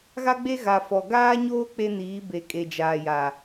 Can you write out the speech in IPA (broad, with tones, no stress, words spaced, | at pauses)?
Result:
ɣa˦ɡ͡be˦ɣa˨ fɔ˨ ɡaː˦ɲoː˦ k͡pe˦niː˨˦be˨ kʼe˨d͡ʒaː˨ja˨